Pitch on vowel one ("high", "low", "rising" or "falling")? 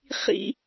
high